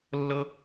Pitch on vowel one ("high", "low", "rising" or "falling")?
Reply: high